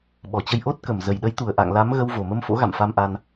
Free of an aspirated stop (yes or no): yes